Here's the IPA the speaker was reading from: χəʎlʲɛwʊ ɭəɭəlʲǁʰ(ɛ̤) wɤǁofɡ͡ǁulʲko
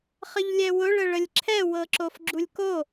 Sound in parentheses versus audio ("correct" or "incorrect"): incorrect